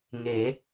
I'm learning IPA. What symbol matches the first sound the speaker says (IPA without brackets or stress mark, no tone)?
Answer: ŋ